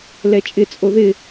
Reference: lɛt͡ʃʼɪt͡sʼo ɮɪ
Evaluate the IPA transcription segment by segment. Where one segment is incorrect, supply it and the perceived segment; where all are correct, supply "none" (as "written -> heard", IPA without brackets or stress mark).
ɮ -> ð